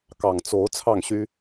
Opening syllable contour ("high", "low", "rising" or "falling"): low